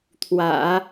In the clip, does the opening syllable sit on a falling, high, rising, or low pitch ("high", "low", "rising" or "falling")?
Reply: low